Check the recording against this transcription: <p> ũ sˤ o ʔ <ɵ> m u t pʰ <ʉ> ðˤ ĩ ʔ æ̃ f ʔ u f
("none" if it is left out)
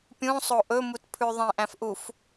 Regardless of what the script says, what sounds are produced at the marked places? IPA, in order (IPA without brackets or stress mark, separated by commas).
pʲ, ɵ, ʉ